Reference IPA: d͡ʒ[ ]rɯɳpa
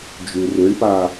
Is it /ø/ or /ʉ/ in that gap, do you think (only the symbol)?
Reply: ʉ